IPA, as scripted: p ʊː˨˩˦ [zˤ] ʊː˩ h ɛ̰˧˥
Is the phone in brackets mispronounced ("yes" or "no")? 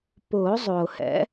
no